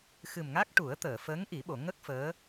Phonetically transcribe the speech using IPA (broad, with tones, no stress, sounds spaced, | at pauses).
x ɨ˨˩ m ŋ a˦˥ k̚ ʈ u˨˩˦ ə̯ t̪ əː˨˩˨ f əː˧˥ ŋ ʔ i˨˩˦ ɓ o˨˩˨ ŋ ə˦˥ k̚ f əː˧˥